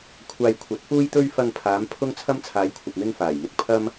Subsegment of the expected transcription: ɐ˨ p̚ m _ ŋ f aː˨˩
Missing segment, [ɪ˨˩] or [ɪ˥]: ɪ˥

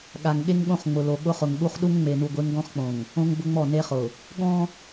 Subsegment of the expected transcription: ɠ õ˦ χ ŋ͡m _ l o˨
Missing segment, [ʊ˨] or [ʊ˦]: ʊ˨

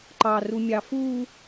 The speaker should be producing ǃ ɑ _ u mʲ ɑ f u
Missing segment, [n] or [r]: r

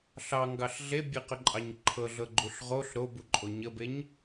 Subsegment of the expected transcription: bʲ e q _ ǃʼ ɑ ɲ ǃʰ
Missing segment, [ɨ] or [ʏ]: ʏ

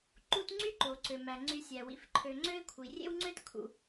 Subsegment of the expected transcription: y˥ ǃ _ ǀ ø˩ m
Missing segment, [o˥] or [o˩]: o˩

